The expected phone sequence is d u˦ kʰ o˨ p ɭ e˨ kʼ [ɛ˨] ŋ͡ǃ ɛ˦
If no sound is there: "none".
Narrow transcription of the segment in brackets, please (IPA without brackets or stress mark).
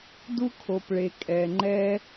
ɛ˨